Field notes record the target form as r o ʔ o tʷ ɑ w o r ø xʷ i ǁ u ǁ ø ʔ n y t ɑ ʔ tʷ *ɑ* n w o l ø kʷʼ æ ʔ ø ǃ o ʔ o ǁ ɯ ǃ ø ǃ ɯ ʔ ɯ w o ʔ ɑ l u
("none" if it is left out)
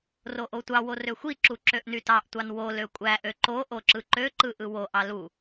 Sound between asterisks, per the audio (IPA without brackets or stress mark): ɑ